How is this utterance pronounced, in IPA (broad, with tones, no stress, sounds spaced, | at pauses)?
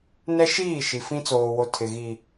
n ɛ˦ ʃ iː˦˨ ʃ i˨ f ĩ˦ t͡s oː˨ w o˨ tʰ ɪ˨ ɣ i˨